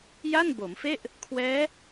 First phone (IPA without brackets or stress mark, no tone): j